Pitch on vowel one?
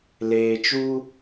low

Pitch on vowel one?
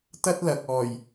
high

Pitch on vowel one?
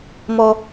low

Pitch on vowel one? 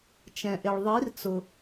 low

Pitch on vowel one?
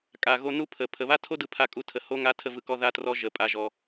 low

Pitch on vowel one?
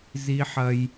high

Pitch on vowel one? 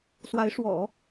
rising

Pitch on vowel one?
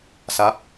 falling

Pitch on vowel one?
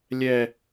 low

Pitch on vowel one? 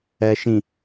low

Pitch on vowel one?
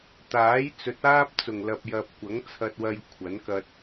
rising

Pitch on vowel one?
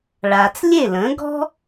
low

